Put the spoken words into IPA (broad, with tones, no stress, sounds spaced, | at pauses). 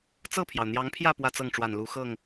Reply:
t͡s ɤ˥˩ pʰ j ɑ˩ ʊ̯ n̪ j ɑ˧˥ ŋ pʰ j ä˥˧ p w ä˥˧ t͡s ɤ˥˩ ŋ ʈ͡ʂ w a˨˩ n l u˧˥ x ɤ˥˩ ŋ